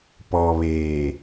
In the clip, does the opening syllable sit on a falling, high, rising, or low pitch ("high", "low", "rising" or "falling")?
low